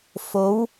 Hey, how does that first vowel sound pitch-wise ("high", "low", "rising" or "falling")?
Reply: rising